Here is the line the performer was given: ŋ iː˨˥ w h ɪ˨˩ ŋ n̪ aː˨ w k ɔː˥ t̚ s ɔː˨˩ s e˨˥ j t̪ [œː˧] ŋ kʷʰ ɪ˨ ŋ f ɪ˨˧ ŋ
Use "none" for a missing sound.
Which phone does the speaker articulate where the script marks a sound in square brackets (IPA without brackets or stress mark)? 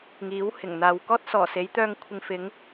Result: œː˧